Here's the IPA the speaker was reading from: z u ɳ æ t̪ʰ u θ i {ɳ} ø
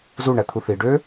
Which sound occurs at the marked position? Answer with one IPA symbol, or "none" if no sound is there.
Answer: ɖ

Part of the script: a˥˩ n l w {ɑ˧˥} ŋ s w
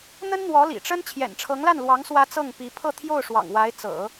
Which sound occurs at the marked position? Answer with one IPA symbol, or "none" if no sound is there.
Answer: ɑ˧˥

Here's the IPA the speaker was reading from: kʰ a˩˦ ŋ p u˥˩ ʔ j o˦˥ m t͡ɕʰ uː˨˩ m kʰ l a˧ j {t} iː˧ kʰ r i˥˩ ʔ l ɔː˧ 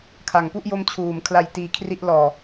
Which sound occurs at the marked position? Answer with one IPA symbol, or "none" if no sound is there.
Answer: t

